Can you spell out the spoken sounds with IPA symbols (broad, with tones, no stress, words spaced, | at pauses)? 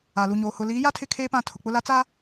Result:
a˨lu˨ɲoː˨ hʊ˨ liː˨˦ja˦ tʰɪ˦˨kʰeː˦pã˦˨ tʰʊ˨k͡pʊ˦la˦t͡saː˦